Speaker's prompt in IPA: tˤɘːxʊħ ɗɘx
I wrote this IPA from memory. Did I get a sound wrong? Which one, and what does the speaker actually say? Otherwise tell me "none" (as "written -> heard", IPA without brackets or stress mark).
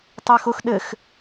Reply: ħ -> x